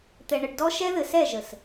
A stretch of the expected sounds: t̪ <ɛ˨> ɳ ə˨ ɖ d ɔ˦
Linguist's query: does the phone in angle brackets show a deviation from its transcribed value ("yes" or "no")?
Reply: no